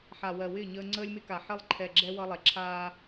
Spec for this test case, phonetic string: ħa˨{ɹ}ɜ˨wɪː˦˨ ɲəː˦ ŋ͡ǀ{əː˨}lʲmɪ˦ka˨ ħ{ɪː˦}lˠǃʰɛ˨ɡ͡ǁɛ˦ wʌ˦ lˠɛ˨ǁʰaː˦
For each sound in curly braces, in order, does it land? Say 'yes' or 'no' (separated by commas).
no, no, no